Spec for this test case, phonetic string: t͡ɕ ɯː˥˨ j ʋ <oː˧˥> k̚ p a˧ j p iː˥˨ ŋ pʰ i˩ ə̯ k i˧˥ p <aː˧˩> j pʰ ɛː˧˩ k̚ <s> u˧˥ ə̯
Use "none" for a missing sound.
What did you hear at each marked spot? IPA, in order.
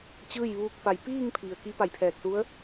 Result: uː˧˥, a˧˩, s

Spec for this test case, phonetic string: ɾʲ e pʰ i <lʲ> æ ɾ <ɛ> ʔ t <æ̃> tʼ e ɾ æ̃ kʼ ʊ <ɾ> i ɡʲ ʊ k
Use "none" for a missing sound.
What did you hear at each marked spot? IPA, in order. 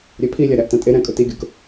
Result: lʲ, æ, ã, t

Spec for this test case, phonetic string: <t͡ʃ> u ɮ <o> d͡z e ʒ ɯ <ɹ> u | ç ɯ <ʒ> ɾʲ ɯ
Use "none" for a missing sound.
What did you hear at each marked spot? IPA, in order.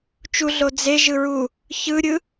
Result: t͡ʃ, o, ɹ, none

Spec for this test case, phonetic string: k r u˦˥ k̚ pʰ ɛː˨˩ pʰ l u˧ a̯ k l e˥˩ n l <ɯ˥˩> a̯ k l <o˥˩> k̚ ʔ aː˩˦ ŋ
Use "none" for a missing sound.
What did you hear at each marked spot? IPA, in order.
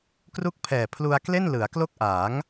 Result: ɯ˩˦, o˥˩

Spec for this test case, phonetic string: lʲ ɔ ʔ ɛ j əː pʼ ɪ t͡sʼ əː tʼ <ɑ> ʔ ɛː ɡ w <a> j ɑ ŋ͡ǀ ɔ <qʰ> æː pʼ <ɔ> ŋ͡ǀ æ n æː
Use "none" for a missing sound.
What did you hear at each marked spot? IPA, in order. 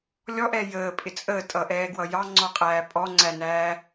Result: ʌ, ʌ, qʼ, ɔ

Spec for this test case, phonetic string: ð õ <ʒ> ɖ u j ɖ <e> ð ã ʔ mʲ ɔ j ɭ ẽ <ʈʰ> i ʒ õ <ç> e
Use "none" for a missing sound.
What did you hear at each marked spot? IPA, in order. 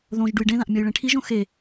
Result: ʒ, ẽ, ʈʰ, x

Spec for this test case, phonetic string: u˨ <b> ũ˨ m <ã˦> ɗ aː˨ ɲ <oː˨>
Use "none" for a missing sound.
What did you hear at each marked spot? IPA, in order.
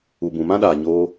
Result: b, ã˦, oː˧

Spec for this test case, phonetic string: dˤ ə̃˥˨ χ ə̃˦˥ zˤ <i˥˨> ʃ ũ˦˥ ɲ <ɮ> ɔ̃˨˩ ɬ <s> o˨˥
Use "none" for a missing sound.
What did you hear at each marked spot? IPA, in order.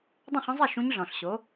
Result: i˥˨, ɮ, ɕ

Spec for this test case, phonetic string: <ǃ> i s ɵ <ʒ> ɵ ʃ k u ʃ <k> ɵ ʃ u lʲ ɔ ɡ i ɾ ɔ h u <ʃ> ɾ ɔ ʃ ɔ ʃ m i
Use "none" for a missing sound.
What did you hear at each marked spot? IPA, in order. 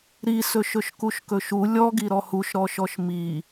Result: ɾ, ʃ, k, ʃ

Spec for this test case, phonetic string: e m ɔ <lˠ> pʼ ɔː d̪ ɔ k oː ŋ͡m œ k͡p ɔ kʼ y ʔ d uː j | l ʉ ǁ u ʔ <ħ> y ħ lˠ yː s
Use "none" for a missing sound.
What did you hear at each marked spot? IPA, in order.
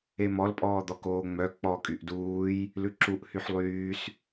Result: l, h

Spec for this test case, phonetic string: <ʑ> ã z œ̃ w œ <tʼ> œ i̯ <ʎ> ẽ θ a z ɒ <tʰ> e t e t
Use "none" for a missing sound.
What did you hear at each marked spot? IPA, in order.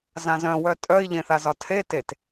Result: z, tʼ, ʎ, tʰ

